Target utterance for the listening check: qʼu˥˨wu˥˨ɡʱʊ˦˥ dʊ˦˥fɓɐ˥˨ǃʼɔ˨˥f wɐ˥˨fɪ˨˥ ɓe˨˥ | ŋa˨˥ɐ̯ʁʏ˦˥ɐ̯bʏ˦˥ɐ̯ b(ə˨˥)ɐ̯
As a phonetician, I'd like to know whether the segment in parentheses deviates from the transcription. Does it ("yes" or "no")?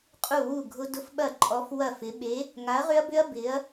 yes